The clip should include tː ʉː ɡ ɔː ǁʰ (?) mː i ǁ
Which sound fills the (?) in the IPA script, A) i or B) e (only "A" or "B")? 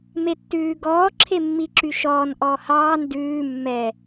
B